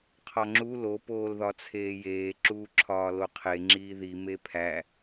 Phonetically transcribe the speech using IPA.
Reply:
qʰɒŋ͡ǁu lo poːlðɒt͡sʰeːjeː ǁuːǁʰɒːloqʰe ŋ͡ǁiːði mepʰæ

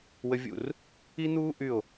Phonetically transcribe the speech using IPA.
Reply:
wə˥vʲṵ˥˧r | i˥n̪uː˥ ʔy˥˧o̯

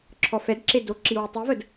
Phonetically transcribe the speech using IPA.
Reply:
ǁʰɔfɛdǁe do ǁiwetˤivəd

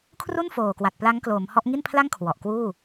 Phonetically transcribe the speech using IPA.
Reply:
kʰru˥˩nfoː˨˩kwa˨˩t̚ pla˦˥ŋkloː˩˦mhɔ˦˥ʔ ŋi˥˩npʰla˥˩ŋkʰwɔ˨˩ʔ kwuː˥˩

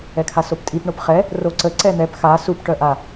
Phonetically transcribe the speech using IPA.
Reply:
ɛkʰasoptʼip ɳopχɛ | roǀə ǀɛn̪ɛp xa sup ʈœʔa

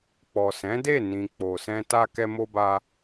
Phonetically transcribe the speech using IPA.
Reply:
k͡pɔ˨sɛ̃˨˦ de˦˨ nĩ˨k͡po˨sɛ̃˧ ta˧kɛ˧mo˧ba˧

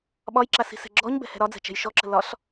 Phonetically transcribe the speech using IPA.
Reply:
ɓɒjǁa si̤sɛ̤ɡ͡ǁɔɲbɛ̤ hɛ̤ɾɒd͡zɛ̤ t͡ʃɛ̤jʃɔǁə̤ lɒɬ

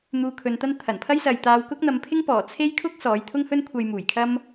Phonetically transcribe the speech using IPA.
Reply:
n̪uː˧kʰɵ˨˧nt̪ɐ˥n t̪ʰɐ˨˩npʰɐ˥jsɐ˨jt̪aː˧w kʊ˥k̚n̪ɐ˨˧mpʰɪ˥ŋ pɔː˨˩t͡sʰe˥jkʰʊ˥k̚ sɔː˨˥j t̪ʰʊ˥ŋhɵ˥nkʷʰɐ˧j muː˨˩jkʰɐ˥m

